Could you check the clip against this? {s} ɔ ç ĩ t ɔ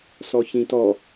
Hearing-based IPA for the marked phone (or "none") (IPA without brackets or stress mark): s